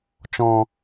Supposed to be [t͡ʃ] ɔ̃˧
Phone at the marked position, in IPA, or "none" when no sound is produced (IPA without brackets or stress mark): t͡ʃ